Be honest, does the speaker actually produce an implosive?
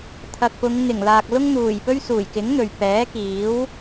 no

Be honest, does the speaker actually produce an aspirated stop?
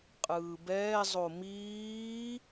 no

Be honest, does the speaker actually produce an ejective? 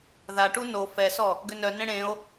no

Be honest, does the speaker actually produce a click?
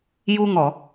no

